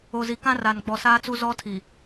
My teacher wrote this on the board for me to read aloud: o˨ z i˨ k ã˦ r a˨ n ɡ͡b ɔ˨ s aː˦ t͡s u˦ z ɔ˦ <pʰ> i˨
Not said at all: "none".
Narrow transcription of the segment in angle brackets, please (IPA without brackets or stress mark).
tʰ